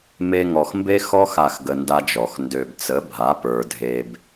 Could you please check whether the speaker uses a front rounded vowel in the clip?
yes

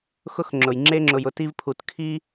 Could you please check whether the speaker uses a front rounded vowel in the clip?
no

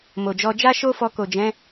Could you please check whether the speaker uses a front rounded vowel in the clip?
no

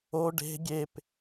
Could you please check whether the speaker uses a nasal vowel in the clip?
no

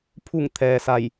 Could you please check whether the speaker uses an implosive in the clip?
no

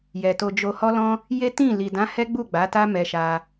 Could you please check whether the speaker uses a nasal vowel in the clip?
yes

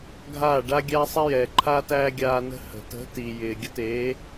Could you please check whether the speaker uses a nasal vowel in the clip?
no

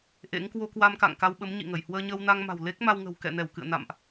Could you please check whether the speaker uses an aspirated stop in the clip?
no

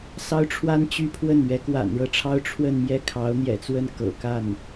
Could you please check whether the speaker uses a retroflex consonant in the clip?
yes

